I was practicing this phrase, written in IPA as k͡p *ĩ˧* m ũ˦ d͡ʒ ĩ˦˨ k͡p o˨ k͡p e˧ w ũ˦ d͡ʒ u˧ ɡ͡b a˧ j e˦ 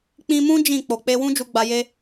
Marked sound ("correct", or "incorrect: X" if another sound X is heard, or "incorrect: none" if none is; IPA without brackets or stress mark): correct